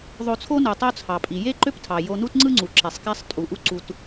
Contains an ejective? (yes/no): yes